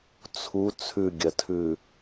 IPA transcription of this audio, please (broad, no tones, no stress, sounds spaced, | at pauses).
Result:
t͡sʰ u t͡sʰ ʉ ɡʲ ɐ tʰ ʉ